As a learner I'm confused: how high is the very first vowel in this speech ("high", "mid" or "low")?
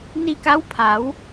high